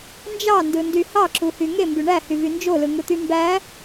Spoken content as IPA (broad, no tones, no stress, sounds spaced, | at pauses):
n d͡ʒ ɑ n d ɯ n d y h ɑ ǁ u h y ŋ e m b y ɳ æ h y v y n d͡ʒ o l ɯ ŋ ɯ t̪ y m b æ